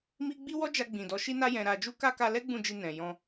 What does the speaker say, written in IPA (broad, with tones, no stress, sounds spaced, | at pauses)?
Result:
m i˧ ɡ͡b i˦ w ɔ˦ d͡ʒ a˧ ɡ͡b ĩ˨ d ɔ˨˦ ʃ i˦ n a˦ j ɛ̃˧ ɾ a˨ d͡ʒ u˧ k a˧ k a˧ l ɛ˦ ɡ͡b ũ˦˨ d͡ʒ i˧ n ɛ̃˨ j ɔ̃˧